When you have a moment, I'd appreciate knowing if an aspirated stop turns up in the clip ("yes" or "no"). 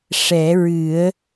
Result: no